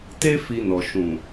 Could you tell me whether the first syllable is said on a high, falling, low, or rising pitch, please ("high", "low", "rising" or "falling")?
high